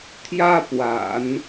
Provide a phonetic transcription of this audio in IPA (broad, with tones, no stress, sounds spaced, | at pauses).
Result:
t̪ʰ j ä˥ p w a̰˨˩˦ n